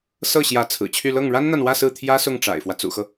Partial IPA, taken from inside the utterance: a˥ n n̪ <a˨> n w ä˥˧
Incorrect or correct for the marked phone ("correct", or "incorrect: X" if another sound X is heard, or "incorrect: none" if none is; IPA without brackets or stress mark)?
correct